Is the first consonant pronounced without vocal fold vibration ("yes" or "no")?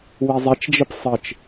no